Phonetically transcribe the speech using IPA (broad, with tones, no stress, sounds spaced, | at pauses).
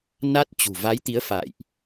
n a˦˥ t̚ t͡ɕ ṳ˨˩ v a˨˦ j t̪ i˨˦ ə̯ f a̰ː˧˨ j ʔ